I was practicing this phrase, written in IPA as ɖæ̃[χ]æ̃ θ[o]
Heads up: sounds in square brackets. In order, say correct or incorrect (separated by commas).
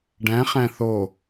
correct, correct